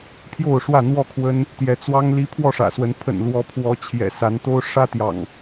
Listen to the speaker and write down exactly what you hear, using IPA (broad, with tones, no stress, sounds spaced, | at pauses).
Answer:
pʰ j o˥˨ ʊ̯ ʂ w ä˥˨ n̪ w ɔ˥˨ kʰ w ə˦ n | t̪ j ɛ˨˦ t͡s w ɑ˦ ŋ l i˦ pʰ w ɔ˥˨ ʂ ä̰˨˩ s w ə˨˦ n pʰ ə̰˨˩ n l w ɔ˨˦ pʰ w ɔ˨˦ t͡ɕʰ j ɛ̰˨˩ s a˨˦ n t̪ o˦ ʊ̯ ʂ ä˦ t̪ j ɑ̰˨˩ ŋ